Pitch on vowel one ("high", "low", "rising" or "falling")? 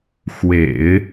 low